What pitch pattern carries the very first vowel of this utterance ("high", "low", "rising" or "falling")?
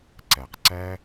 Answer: low